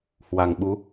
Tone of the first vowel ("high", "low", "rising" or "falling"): low